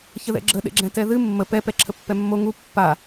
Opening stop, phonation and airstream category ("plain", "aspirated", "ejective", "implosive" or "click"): click